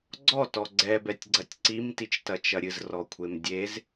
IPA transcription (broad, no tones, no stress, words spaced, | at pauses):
ɡ͡ǀɔtɔ ɡ͡ǀɛbɛtʲɡ͡ǀɐtʲ ǀimtit͡ʃtɐt͡ʃɐ ɾʲɨzrɔkʷʰem dʲez